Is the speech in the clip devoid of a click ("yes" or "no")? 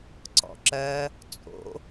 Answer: no